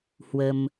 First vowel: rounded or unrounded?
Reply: unrounded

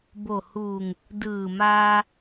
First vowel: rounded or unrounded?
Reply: rounded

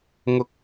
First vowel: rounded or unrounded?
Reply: rounded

